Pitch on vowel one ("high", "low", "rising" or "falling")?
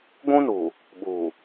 high